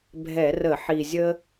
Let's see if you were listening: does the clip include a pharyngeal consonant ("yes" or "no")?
yes